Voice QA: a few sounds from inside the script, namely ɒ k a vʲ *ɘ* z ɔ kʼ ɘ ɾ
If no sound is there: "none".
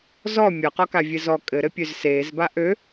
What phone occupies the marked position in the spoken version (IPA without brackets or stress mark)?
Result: ɘ